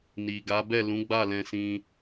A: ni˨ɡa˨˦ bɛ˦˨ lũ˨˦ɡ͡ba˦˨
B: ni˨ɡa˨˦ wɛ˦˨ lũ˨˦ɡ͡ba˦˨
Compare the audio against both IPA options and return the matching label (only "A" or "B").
A